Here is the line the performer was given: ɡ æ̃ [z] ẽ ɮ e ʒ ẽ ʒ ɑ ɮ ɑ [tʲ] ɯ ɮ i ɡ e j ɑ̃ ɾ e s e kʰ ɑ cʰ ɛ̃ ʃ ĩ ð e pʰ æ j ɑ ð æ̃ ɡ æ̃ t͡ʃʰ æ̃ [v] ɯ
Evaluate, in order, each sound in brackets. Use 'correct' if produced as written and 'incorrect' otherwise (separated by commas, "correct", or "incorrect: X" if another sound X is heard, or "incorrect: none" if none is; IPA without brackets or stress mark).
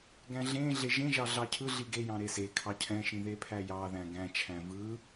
incorrect: ɮ, incorrect: cʰ, correct